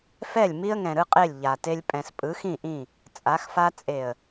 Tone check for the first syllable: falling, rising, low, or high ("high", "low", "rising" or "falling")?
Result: falling